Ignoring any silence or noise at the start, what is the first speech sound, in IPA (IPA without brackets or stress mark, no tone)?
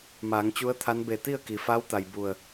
m